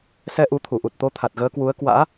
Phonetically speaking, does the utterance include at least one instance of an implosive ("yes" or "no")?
no